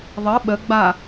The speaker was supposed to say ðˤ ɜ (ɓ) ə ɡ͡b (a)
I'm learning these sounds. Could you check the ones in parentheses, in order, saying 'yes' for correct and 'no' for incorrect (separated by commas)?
yes, yes